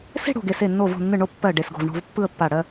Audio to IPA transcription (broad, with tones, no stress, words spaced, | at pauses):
se̤˥˧ɽo̤˧˩ ɡe˧˩se˧˩ nːo˧˩vo̤˧˩nːɯ˧˩ ɳo˥˧ pːɜ˧˩ ɖe˧˩sɡo̤˧˩vɳo̤˥˧v pːɯ˥˧ə̯pːa˧˩ ɽɜ˥˧